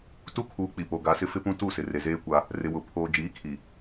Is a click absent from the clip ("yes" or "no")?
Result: yes